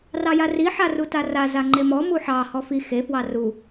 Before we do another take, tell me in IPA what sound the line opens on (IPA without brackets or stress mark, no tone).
r